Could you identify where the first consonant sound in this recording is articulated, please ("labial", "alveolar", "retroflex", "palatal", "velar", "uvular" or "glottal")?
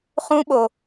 uvular